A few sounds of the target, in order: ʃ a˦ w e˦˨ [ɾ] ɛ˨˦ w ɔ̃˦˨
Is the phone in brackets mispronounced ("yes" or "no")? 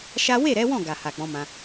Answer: no